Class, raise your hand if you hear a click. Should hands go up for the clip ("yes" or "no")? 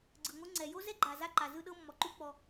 yes